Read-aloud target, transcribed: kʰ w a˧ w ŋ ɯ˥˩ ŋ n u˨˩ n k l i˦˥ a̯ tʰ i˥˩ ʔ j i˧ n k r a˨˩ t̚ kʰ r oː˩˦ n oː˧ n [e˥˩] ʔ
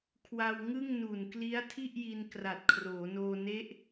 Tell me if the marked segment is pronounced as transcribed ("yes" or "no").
no